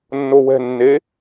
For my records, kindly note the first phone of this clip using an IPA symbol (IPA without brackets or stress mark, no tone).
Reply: nː